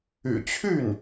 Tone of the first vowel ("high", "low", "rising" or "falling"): low